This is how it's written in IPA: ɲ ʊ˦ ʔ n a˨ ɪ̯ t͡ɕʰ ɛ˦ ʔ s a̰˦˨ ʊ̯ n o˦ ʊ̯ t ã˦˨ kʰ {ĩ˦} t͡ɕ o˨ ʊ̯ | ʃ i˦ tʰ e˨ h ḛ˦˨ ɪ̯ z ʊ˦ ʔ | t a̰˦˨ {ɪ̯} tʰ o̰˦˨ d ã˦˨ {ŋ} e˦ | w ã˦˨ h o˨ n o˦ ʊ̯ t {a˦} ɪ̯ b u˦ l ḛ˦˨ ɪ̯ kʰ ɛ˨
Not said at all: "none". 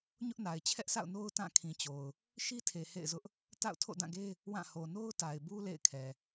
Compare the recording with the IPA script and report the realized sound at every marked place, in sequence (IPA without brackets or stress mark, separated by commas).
ĩ˨, ʊ̯, ɡ, a˨